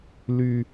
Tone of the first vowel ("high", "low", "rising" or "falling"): high